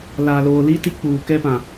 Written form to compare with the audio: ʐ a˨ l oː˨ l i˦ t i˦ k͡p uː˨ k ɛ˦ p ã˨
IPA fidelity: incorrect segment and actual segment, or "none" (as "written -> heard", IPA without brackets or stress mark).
ʐ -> l